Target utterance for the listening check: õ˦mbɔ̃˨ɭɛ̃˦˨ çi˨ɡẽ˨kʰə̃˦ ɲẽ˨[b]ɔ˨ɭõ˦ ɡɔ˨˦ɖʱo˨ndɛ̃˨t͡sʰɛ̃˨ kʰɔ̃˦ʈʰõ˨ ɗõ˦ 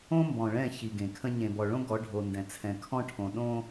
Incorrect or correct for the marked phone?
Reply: correct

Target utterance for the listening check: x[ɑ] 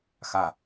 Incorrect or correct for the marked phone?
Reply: incorrect: a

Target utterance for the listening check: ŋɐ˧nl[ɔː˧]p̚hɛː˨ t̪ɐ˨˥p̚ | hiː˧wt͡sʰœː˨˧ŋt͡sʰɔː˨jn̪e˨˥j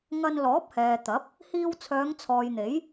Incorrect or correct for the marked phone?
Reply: incorrect: ɔː˨˥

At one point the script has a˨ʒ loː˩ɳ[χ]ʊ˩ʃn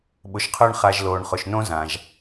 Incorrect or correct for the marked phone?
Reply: correct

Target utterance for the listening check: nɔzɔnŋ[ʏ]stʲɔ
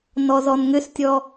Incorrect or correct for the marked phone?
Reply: correct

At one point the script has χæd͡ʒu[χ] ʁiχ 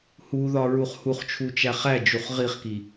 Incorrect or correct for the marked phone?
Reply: correct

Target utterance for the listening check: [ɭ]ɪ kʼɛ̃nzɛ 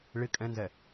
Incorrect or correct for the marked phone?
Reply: correct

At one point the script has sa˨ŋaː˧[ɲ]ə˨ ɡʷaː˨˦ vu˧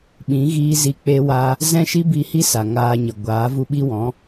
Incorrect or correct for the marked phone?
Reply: correct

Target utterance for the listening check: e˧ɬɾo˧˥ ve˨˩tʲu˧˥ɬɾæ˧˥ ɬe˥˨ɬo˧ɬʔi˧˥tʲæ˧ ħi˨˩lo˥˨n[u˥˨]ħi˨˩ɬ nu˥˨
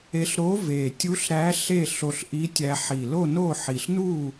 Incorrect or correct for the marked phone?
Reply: incorrect: o˥˨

